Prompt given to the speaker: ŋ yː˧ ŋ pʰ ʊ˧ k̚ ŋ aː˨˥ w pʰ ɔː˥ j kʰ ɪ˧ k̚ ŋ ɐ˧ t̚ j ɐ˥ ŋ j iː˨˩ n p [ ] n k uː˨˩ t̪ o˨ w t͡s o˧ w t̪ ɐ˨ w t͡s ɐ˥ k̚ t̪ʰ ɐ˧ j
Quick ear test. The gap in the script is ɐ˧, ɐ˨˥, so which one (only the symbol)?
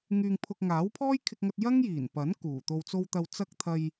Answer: ɐ˨˥